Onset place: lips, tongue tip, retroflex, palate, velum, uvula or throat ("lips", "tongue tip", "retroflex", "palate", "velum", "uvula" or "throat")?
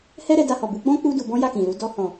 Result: throat